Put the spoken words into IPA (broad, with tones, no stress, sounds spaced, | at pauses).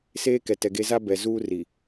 s eː˦ k ɛ˨ t ɛ˨ ɡ e˦ z a˦ b ɛ˨ z uː˦ r i˨